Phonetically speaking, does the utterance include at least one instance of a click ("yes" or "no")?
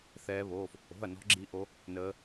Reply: yes